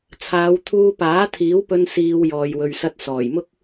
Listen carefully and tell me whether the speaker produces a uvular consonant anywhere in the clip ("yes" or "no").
no